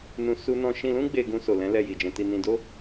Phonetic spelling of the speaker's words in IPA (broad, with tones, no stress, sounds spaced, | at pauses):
n ũ˧ s u˦ n ɔ̃˦ ʃ ĩ˧ l ũ˦ ɡ͡b e˧ ɡ ũ˧ s o˨ l ɛ̃˨˦ l ɛ˧ j i˨ d͡ʒ ɛ̃˧ t i˧ n ĩ˨ d o˧